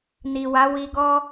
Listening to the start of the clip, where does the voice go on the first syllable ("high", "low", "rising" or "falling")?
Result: low